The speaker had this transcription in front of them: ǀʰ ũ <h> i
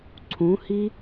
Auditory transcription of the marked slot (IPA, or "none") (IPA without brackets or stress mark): h